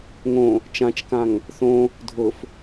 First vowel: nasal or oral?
nasal